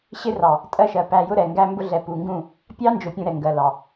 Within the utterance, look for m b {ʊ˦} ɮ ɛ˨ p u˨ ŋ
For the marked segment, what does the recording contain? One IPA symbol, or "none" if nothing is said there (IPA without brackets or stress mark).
ʊ˦